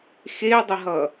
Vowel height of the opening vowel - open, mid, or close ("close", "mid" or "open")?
mid